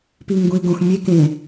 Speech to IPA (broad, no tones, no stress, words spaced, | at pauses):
piŋ ɡũi̯ɡõx mʲe kẽ